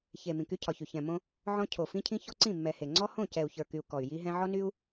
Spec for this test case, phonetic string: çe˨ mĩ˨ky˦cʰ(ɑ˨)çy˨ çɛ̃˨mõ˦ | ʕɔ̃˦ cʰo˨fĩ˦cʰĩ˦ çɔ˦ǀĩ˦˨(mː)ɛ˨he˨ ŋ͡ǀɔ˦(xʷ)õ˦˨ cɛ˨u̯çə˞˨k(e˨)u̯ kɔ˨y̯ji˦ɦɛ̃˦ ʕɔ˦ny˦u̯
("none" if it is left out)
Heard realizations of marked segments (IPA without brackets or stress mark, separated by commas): ɒ˨, mː, h, y˨